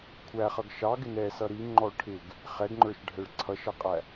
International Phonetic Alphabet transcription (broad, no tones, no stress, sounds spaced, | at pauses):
kʷʰ æ χ ʌ ɡ ʃ ɑ ɡ ɪ n ɛ s ʌ ɾ i ŋ͡ǃ ɔ ʈʰ ɪ ɡ | χ ɛ ɡ ŋ͡ǃ ə˞ ʃ ɖʱ ɛ ɭ ǀʰ ʌ ʃ ʌ qʼ æ